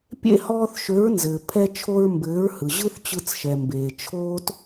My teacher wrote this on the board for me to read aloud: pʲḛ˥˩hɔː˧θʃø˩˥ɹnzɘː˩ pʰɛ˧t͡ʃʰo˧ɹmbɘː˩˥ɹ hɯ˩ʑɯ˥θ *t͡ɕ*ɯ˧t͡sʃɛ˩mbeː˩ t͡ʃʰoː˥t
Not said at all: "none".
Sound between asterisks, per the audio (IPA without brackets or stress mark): t͡ɕ